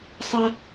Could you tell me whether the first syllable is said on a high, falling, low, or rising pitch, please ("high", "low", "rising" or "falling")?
high